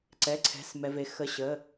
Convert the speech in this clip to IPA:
ǀ ɛ˩˧˩ ǀʰ ɛ̤˩˧˩ s m ɛ˩ v e˩ x ə˩˧˩ ɕ ə˩˧˩

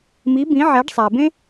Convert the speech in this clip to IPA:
m i˧˥ b ĩ˧˥ ʕ æ˧˥ ɖ sˤ æ˧ b ẽ˥

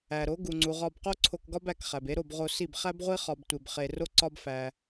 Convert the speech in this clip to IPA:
æ˩ ɾ o˩˥ ɡ u˩ ŋ͡ǀ u˩ ʁ ɒ˧ b q o˥ ǀʰ o˧ k ɡ ɒ˥ b æ˥˩ k χ æ˩ b e˥ ɾ o˥˩ b ʁ o˧ s i˥˩ b χ æ˥ b ʁʷ i˥ χ ɒ˧ b tʷ e˧ b χ e˧ r o˥ ǀ ɒ˥ b f æ˧

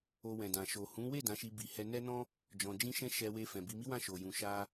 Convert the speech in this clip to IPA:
o˧ w ɛ̃˨ d ã˨ ʃ o˨ h ũ˨˦ w e˦˨ d ã˨˦ ʃ i˧ b i˨ h ɛ˧ n ɛ˦ n ɔ̃˦ | d͡ʒ ɔ̃˧ d͡ʒ ĩ˦ ʃ ɛ̃˦ ʃ ɛ˧ w e˧ f ɛ̃˨ b i˧ m i˦ w ã˦˨ ʃ o˨ j ũ˨ ʃ a˧

